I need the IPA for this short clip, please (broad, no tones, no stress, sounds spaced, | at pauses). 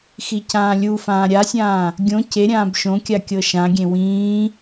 x i c ãː lʲ u f ãː ɾʲ a sʲ ãː | ɡʲ õ c e ɾʲ ãː b ʃ õ kʲ a kʲ ɤ ʃ ã ɡʲ ẽ w ĩː